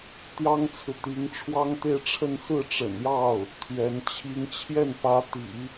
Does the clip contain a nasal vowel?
no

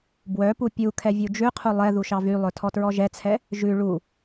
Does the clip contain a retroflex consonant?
yes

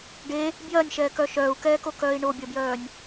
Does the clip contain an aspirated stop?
no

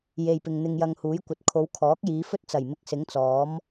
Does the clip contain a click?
no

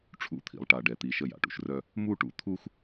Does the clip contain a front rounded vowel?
yes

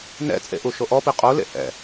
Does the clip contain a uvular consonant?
yes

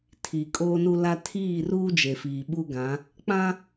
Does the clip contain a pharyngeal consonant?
no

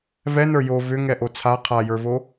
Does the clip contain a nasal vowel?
no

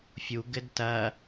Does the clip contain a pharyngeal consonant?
no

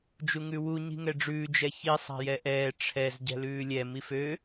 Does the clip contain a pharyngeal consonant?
no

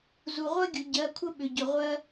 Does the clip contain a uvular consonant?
yes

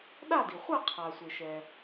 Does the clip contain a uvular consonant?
yes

